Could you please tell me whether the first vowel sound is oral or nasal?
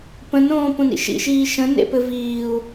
nasal